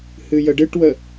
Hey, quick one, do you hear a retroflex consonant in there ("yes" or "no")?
yes